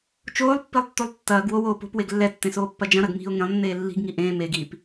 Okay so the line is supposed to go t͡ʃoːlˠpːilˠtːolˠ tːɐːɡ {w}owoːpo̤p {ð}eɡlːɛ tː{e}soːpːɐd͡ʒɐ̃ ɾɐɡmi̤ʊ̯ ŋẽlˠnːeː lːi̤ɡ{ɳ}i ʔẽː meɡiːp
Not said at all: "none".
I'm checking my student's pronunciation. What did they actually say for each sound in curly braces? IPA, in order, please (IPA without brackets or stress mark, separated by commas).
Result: w, w, ẽ, ŋ